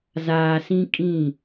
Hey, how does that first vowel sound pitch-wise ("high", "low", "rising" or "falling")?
low